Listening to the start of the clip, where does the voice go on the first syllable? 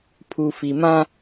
low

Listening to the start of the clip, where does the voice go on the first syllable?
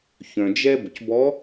low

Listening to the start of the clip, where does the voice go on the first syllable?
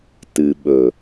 low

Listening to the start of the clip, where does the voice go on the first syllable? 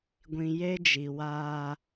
low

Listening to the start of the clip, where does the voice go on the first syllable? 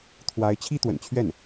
rising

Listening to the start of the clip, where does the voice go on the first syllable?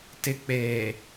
low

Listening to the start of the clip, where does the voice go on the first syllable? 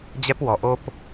high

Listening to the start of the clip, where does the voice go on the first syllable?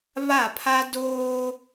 falling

